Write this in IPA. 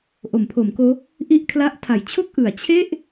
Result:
ʔo˩˦mpʰo˩˦mkoː˦˥ | ʔi˥˩ʔkʰla˦˥ʔ tʰa˩˦jt͡ɕʰo˥˩k̚ʔɯ˩˦a̯ t͡ɕʰe˥˩ʔ

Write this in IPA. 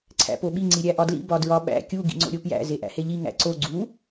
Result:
ǀʰæ̰poɓi ŋ͡ǀiɾʲæʔɒdlḭ bɒdɹɒɓæ̰ kʲu ɡḭŋ͡ǀo̰ɾʲopjæ̰ zeʔæ̰heʎi ŋæ̰ǀo ɡ͡ǀu

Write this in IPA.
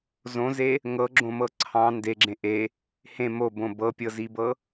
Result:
zõze | ŋɤɡ͡ǁõmɤ ǀʰɑ̃ ndeɡ͡ǁẽ ʔe | hẽ mobõ bɤpʲɤzibɤ

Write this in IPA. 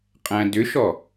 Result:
qʼæ̃dʏʃɔ

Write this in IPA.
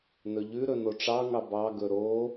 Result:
nɵʎʉ ɾɵnoʈ͡ʂɑŋɑ bɑɡɵ ɾo

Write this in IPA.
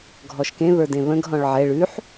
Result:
ɡʱɔʃkẽ βə˞dẽβə̃ɡ ɦɔ̃ɭʕɛ ɭʉħ

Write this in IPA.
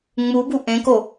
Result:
ŋ͡mubu ʔẽko

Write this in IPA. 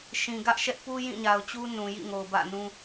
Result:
ʃĩ˨ ɡä˦ʔʃɛ˦ʔ pu˦ jĩ˦˨ɲa˨ʊ̯t͡ɕu˦ nũ˨jḭ˦˨ŋo˨ʊ̯ bä̰˦˨nũ˦

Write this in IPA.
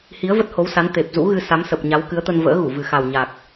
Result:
hi˨˦ə̯və˦˥t̚ho˨˦wsa˨˦n t̪e˨˩p̚zṵ˧˥ɣɨ˧ sa˨˦msə˨˩p̚ɲa˨˦w kɨ˨˦ə̯t̪ə˧n və̰ː˧˥ɣu˧˩ vɨ˨˩xa˨˩w ɲa˨˩k̚

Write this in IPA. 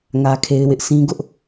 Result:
ŋä˦kʰe˦ɪ̯wɪ˦ʔ sĩ˦ɡʊ˦ʔ

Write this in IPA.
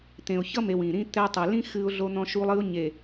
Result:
t̪ẽ˨ʊ̯çʌ˦me˨w ĩ˨ɾĩ˦ t̪ɛ˦ tˤɛ˨lĩ˦ xɨ˦ʊ̯ɮo˦ n̪ɔ̃˦ʃu˦lˠɨ˦ʊ̯ ɲe˨

